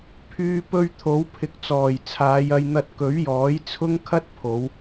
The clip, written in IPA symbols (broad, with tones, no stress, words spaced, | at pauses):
pʰyː˧ pɵ˧ɥ t̪ʰo˨˥w pʰɪ˨k̚t͡sɔː˨˩j t͡sʰaː˨˧jɐ˧jn̪ɐ˧t̚ kɵ˨˥ɥjɔː˨˥j t͡sʰʊ˥ŋkʰɐ˥t̚ pʰo˨˧w